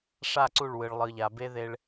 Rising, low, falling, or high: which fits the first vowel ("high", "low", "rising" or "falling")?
falling